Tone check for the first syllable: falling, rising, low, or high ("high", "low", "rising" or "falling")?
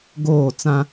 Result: falling